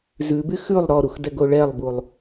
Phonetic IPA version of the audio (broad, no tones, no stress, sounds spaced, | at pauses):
z ʉ b y x ʉ lˠ ɾ ɔ ɾ u x d ɛ ɡ o ɭ ɛ lˠ b u lˠ